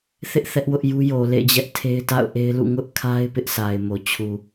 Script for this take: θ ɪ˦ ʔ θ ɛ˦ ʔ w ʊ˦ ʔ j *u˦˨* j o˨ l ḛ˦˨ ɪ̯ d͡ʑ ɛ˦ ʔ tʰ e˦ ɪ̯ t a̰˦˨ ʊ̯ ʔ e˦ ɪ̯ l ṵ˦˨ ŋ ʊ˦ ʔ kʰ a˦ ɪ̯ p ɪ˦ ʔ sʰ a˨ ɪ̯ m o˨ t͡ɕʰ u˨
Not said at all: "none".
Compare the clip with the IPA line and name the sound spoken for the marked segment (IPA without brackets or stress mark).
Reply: u˦